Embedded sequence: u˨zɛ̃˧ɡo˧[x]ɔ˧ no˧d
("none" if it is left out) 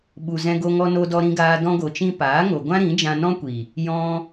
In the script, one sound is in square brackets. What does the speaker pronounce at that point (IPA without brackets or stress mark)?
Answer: ŋ